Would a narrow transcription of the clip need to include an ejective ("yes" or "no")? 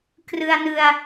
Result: no